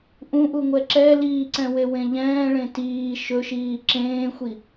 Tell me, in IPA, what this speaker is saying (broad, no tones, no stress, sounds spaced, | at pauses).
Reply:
ʔ ũ ʔ u ŋʷ ɛ ǁ ɛ l iː ǀ ɛ̃ w e w ẽ ʎ ɛ̃ː ɭ ẽ t iː ʃ ɵ ʃ iː ǁ ẽː xʷ i